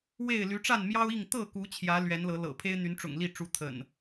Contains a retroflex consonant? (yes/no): yes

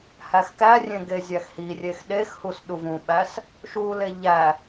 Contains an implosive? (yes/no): yes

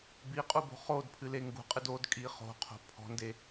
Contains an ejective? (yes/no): yes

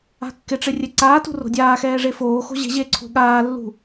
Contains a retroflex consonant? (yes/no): yes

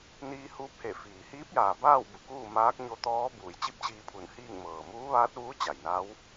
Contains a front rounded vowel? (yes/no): no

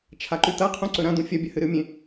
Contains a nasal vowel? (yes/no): yes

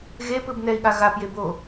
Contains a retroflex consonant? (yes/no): no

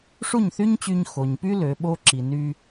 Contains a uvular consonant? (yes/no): no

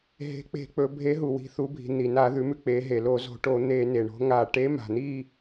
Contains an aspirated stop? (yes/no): no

